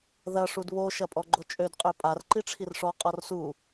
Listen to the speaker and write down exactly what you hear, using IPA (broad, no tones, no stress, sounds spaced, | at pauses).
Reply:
ð ɐ ʂ u d β o ʃ ɐ pʼ ɔ ɡ͡ǃ o t͡ʃʼ ø d qʼ ø pʼ a r ǃ i ʈ͡ʂʰ i r ʂ ɔ qʼ ɔ r s u